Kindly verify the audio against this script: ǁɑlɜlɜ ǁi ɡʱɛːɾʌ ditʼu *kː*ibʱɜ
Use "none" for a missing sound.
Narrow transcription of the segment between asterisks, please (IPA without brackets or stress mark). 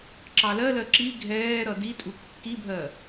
kː